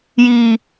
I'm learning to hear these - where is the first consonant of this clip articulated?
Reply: palate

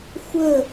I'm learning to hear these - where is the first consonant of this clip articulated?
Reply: velum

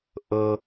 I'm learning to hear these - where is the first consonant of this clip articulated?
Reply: throat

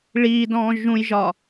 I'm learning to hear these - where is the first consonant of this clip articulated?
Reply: retroflex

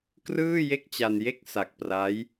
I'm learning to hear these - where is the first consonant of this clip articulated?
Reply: velum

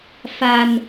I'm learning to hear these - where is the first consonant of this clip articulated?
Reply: lips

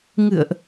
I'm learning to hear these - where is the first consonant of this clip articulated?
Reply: velum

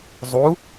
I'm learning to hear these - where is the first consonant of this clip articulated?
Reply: tongue tip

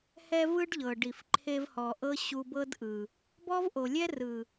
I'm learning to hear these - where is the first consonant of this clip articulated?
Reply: throat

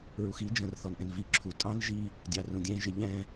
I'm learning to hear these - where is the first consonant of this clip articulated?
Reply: tongue tip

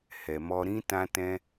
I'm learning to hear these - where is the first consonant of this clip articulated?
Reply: throat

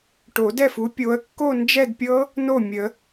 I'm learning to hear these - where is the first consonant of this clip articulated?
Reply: retroflex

